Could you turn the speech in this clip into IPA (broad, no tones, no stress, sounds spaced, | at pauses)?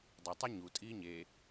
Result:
dˤ ʌ tˤ ʌ ɲ u tʼ iː ɲ e